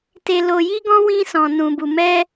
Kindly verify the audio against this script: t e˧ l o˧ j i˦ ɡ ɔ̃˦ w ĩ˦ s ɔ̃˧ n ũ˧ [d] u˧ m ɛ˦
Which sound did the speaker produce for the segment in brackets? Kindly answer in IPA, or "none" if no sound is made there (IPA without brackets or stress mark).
b